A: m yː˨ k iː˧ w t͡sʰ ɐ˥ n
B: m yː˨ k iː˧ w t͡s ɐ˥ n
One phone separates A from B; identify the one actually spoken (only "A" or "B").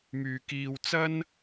B